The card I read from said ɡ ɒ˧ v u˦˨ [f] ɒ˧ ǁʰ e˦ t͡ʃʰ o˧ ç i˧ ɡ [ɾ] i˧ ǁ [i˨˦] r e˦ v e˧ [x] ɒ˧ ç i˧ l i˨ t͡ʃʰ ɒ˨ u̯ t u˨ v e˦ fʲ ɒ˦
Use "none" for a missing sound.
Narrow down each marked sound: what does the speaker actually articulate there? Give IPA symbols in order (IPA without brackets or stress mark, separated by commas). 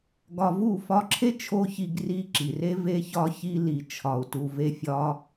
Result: f, r, i˨, ç